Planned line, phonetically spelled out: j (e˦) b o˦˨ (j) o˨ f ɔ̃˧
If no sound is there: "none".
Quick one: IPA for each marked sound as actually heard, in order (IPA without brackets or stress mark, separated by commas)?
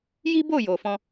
i˦, j